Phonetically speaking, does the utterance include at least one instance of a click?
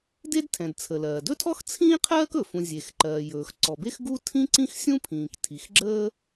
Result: yes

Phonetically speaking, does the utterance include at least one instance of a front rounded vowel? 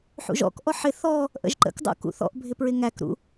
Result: no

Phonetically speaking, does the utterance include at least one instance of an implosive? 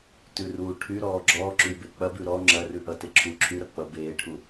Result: no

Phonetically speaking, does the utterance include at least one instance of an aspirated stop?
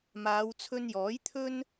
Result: yes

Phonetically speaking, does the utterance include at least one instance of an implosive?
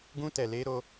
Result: no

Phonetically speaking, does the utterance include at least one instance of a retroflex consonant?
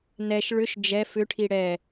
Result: yes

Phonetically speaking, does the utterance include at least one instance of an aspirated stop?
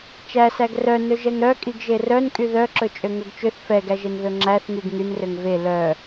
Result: no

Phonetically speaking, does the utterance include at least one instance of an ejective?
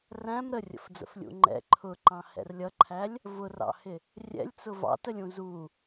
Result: no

